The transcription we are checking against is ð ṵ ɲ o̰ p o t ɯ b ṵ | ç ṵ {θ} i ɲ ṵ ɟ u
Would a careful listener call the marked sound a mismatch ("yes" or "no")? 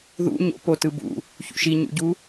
yes